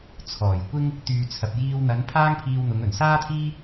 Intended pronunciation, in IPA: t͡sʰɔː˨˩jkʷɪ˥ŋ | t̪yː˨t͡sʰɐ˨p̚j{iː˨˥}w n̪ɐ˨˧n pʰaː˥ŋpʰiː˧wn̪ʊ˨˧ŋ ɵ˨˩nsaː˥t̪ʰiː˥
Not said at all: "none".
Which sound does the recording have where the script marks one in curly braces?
iː˧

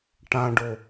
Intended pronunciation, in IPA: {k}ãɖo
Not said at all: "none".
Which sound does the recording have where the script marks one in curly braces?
ʈ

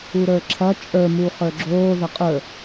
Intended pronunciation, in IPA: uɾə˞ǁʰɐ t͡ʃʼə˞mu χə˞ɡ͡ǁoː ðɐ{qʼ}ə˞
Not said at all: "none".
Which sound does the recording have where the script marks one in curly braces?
qʼ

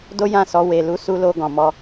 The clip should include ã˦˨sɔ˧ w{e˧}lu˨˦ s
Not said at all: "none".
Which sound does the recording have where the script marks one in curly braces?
e˨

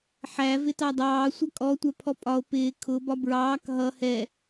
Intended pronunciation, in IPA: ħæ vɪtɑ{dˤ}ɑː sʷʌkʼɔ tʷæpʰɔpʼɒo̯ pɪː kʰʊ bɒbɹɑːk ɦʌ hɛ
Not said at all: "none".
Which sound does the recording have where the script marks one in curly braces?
dˤ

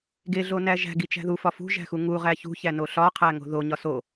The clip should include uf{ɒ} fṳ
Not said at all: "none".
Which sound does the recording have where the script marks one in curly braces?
ɒ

